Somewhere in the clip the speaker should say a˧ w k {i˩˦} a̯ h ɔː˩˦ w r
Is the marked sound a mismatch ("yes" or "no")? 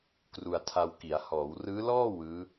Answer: no